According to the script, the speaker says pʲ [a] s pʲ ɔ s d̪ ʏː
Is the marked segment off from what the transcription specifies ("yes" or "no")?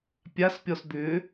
no